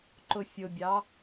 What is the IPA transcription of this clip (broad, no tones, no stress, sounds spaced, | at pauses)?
ǃ ʊ fʲ ʊ bʲ ɑ